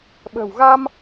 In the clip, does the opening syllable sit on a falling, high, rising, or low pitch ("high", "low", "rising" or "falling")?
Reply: low